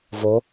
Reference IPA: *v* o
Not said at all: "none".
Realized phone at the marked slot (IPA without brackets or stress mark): v